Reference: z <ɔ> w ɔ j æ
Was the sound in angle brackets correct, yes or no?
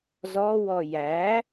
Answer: yes